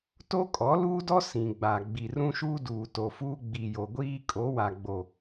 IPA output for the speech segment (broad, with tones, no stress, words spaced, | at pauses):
to˦kʼɔ˨˦luː˦dɔ˦ sĩ˨ɡ͡ba˨ ɡ͡bi˨rũ˦ʃuː˦ duː˨to˨fuː˦ ɡ͡bi˨jo˨ɡʷiː˦ kʼo˨˦wa˨ɡ͡bo˨